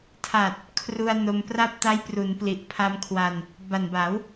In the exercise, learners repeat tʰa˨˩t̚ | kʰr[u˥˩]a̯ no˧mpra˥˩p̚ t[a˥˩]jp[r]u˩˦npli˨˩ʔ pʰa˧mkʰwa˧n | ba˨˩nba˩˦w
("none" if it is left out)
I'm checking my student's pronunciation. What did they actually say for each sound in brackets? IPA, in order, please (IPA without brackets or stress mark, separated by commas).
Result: u˧, a˦˥, r